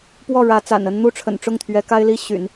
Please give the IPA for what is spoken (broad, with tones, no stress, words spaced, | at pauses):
pwɔ˥˩ɻä˧˥ t͡sa̰˨˩nə˥n n̪u˥˩ʈ͡ʂʰə̰˨˩nʈ͡ʂʊ˥˩ŋt̪ʰɥɛ˧˥ ka˥ɪ̯li˥ ɕy̰˨˩˦n